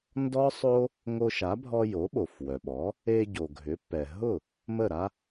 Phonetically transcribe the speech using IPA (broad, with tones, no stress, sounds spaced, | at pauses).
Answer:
n d ɔ˥ sˤ o˥ | ŋ o˧ ʃ a˩˥ bʱ ɔ˧ j o˩˥ ɓ o˩ f w œ˩ ɓ ɔ˩˥ | e˧ ɟ o˩ ɡʱ ʏ˩˥ pː ɛ˩ ɦ ʊ˥˩ | m ə˥˩ ɾ a˥